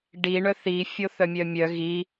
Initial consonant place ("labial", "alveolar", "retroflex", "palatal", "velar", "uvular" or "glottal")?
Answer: retroflex